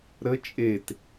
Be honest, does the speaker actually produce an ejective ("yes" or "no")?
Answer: yes